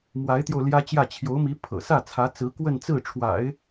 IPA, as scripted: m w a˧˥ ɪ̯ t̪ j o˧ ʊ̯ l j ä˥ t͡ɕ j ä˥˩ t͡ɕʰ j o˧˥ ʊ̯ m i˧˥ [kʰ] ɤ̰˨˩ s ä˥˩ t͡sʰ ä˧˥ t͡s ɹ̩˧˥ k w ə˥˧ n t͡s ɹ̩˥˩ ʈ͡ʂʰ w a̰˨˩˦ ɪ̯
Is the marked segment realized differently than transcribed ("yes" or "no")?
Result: yes